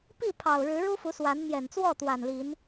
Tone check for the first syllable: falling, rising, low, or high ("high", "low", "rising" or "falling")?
falling